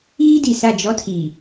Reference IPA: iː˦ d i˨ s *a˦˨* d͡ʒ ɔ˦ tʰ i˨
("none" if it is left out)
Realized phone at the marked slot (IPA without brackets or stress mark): a˦˨